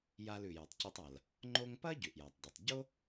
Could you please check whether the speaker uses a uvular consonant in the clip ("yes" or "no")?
no